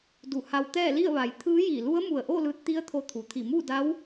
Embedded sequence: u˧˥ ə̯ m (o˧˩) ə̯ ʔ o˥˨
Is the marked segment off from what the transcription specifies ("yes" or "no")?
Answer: yes